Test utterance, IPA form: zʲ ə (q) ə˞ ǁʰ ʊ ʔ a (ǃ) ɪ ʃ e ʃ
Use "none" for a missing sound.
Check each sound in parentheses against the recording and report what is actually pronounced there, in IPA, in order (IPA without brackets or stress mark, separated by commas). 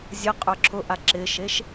qʼ, ǁ